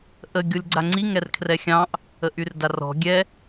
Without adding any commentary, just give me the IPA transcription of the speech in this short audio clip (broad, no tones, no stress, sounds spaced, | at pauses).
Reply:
ʔ ə ɡʲ o lʲ ɡ͡ǀ a ŋ͡ǀ i ŋ ɛ r kʰ r ɛ xʲ ɑ̃ ʔ | ə ʔ y r d a r ɔ̤ ɡʲ ɛ